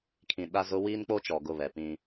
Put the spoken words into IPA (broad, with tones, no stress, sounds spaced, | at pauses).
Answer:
kʰ ĩ˨ ɗ a˦ z ʊ˦ w iː˦ n k͡p o˦ t͡ʃ ɔ˨ ɡ ʊ˦˨ β ɛ˨ p ĩ˦